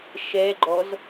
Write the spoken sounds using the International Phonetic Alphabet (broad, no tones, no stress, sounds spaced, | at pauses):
ʃ ɛ ɡ͡ǃ ɔ z